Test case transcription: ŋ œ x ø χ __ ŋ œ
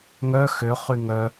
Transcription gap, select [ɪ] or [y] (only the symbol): y